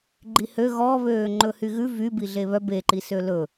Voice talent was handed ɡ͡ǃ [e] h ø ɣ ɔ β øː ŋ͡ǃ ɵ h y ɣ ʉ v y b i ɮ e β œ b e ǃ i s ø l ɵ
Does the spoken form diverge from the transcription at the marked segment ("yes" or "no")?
yes